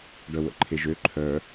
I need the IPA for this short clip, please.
ɖ œ w ə̰ ǃʰ e ʒ ø ǃʰ œ

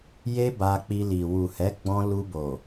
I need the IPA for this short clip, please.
j e˦ b a˧ k͡p i˧ l i˨ w u˨ h ɛ˨˦ ɡ͡b ɔ̃˧ l u˧ b o˨

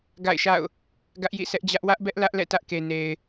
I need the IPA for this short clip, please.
ɡ a̰˦˨ ɪ̯ ʃ a̰˦˨ ʊ̯ | ɡ ä˦ ʔ j ḭ˦˨ sʰ ɛ˦ ʔ d͡ʑ ä˦ ʔ w ä˦ ʔ b ɛ˦ ʔ l ä˦ ʔ l ɛ̰˦˨ t ä˦ ʔ k e˨ n e˨ ɪ̯

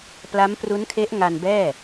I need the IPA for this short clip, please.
p l a˦˥ m p r u˦˥ n kʰ e˦˥ ʔ ŋ a˧ n b ɛː˥˩

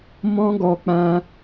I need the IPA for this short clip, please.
m ɔ̃˦ ɡ ɔ˧ k͡p ã˧

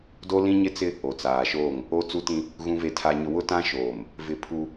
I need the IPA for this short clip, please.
d o˦ l ĩ˦ ɲ ɪ˦ t͡s ɪ˦ | o˨ t͡s aː˨ ʃ oː˦˨ ŋ | o˦ t͡s u˦ t ĩ˦ | ɣ ũ˦ v e˦ tʰ a˦ ɲ ʊ˦ w ʊ˦ t ã˦ ʃ oː˨ m | v ɪ˦ pʰ u˦

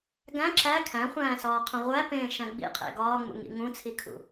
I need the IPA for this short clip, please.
ɡ æ̃ ǁ æ kʰ æ̃ χʷ æ̃ː s ɒː qʰ ũ ʁʷ æ p ẽː ʃ æ̃ ɡ͡b ḭ qʰ ḛ ɡ ɒː ŋ͡m ṵ ŋ ḭ ŋ ũ t͡sʰ i kʰ ṵ

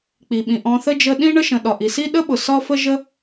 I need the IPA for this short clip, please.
k͡p i˩ ɓ ĩ˩ ʔ ɔ̃˧ θ ə˥ d͡ʒ ə˧ ɗ ĩ˥ ɳ ə˥ ʃ ə̃˩ ɗ ɒ˩ ʔ i˩ s i˥ ɗ ə˥ ɓ ʊ˩ s ɒ˥ f ə˥ ʒ ə˥

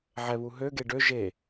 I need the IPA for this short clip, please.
ʕ ɛ β u ɦ ø ɡ e ɖ ø ʒ e

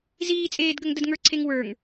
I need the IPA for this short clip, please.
z iː t͡sʼ eː d ɡ ə ŋ d ə d ŋ ə˞ ǀʰ e ŋ w ə˞ ŋ

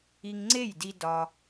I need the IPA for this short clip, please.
i˧ ŋ ŋ͡ǀ e˦˨ j d i˦ d ɒ˦

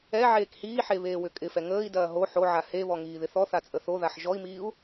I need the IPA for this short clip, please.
ɛ ʕ eː k h iː ħ e β eː w ʏ kʼ ɪ f ɛ ŋ əː i̯ d ɐː ɦ o ħ o ʕ a h e β ɔ ŋ iː ð ɪ θ ɔ θ a t͡sʼ ə θ o ð a ħ ʒ ɔ i̯ m iː u̯

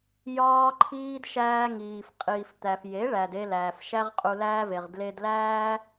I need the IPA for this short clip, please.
j ɒː˦ ǃʰ iː˦ d ʃ æː˦ ŋ iː˨ f qʼ iː˨ f t̪ æ˨ f j e˨˦ ɭ æ˨ d e˧ l æː˨ f ʃ æ˦ ʁ qʼ u˧ l æː˦ v e˨ ʁ d l e˧ d l æː˦

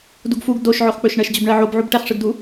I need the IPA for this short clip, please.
d u ɡ f u ɡ d o ʃ ʕ o χ k͡p ɵ ʃ ɳ ɜ ʃ d͡ʑ ɵ b ɳ ɜ ʕ o b ʕ u b ʈ ɛ χ ʂ ɯ ɡ d u

